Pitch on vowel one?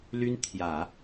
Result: high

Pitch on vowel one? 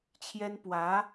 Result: high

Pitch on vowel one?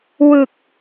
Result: low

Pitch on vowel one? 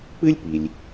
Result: high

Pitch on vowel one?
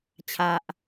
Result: low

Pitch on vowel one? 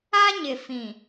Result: high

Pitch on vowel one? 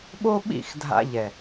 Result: high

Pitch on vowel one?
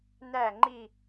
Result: falling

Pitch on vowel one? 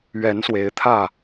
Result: rising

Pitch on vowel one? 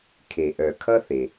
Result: low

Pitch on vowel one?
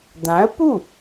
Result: rising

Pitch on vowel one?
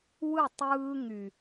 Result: falling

